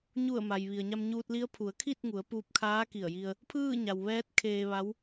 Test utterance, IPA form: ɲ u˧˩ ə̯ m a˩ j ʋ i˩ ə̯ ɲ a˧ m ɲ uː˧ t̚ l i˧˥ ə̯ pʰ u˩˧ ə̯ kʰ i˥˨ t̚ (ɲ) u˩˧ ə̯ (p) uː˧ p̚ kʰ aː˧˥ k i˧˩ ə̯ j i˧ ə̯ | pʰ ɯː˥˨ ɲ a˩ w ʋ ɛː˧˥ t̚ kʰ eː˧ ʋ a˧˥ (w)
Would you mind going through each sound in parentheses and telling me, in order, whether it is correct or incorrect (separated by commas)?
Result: incorrect, correct, correct